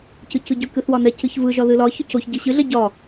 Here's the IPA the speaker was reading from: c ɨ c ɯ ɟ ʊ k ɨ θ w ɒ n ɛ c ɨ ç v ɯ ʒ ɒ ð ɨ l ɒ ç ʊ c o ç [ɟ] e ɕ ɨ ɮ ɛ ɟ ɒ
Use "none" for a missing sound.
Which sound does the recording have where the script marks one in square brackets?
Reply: ɟ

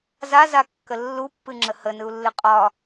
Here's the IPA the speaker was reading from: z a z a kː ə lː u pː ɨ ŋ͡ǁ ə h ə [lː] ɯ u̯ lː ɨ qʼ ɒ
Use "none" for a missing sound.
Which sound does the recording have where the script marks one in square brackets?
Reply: n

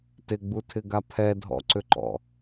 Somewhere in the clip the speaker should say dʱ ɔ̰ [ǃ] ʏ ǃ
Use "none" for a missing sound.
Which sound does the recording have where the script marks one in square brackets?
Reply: ǀ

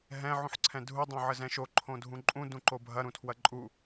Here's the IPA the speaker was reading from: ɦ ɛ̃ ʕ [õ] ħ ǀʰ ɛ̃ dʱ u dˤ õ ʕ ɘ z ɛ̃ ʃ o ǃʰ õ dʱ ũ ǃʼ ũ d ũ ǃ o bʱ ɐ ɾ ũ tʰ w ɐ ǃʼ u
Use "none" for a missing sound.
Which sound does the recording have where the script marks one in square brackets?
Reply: ũ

